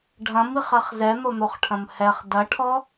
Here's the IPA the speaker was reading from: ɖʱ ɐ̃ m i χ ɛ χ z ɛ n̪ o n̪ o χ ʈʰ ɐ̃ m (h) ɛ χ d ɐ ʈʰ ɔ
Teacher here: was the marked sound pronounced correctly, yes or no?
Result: yes